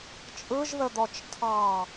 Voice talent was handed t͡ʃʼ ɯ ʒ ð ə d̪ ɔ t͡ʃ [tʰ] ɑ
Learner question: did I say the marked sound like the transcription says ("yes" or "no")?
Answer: yes